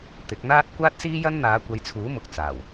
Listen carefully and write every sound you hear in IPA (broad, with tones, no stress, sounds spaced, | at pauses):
t̪ ɪ˨˥ k̚ n̪ aː˥ t̚ kʷ aː˥ t̚ s iː˥ j ɐ˥ n n̪ aː˨˧ kʷ ɐ˨˧ j t͡sʰ uː˨˥ m ʊ˨ k̚ t͡s aː˨˩ w